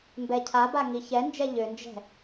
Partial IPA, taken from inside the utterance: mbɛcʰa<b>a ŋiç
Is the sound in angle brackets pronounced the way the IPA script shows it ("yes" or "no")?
yes